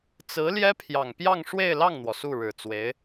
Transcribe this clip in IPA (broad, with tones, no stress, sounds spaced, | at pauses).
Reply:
t͡s ɹ̩˧˥ l j ɛ˥ pʰ j ɑ˨˩ ŋ p j ɑ˥˧ ŋ ʂ w e˥˧ ɪ̯ l ɑ˥˩ ŋ n̪ w ɔ˩ s u˥˩ ɻ ɻ̩˨˩ t͡s w e˧˥ ɪ̯